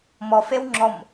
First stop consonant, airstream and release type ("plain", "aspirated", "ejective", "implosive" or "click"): click